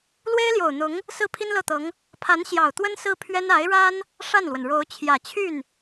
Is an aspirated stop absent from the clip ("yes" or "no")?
no